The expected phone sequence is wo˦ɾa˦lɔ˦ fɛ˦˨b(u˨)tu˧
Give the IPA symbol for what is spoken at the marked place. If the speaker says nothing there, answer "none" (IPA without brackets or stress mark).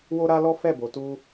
o˨